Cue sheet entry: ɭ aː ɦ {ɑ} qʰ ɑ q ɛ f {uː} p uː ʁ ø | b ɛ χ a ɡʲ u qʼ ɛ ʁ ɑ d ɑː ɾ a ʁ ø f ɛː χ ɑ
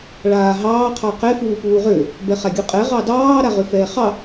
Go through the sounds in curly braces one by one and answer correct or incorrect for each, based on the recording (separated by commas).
incorrect, correct